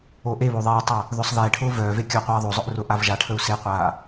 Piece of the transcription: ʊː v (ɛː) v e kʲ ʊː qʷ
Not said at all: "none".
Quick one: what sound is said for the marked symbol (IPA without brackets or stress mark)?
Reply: œː